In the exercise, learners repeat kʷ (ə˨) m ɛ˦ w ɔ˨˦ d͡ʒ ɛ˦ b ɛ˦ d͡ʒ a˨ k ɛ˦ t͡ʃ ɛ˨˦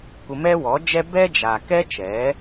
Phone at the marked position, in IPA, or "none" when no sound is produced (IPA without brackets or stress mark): ə˧